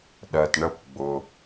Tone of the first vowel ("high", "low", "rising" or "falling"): low